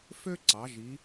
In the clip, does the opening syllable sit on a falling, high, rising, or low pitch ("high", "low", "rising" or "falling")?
high